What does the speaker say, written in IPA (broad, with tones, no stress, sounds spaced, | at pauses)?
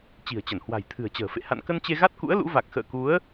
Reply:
t͡ɕ i̤˨˩ ə̯ t͡ɕ ə˧˩ n h w a̤˨˩ j t̪ʰ ɨ̤˨˩ ə̯ t͡ɕ ə̤ː˨˩ f ḛ˧˨ h a̰˧˨ n k ə˧ n t͡ɕ e˧ ɣ a˦˥ t̚ k ṵ˧˥ ə̯ l ṵ˧˥ v a˨˩ k̚ x ə̰ː˧˨ k u˨˦ ə̯